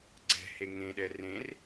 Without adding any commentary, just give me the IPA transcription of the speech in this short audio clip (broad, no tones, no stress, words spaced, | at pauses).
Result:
ɡ͡ǀɛ̤he ŋẽɗɛ rẽr